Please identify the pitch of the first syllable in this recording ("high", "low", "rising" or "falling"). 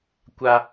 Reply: high